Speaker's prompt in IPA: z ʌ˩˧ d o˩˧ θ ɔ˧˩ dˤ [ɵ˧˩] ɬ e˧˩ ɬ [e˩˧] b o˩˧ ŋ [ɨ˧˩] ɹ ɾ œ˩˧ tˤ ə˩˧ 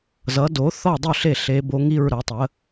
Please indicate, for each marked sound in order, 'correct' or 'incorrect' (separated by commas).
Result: correct, correct, incorrect